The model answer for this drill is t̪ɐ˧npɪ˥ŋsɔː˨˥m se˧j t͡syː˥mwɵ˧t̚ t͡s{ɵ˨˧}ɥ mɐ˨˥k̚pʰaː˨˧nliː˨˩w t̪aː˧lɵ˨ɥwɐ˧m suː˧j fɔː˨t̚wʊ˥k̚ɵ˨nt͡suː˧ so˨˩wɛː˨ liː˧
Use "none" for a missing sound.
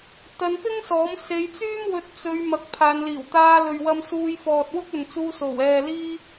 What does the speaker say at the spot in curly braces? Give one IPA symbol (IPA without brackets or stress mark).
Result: ɵ˨˧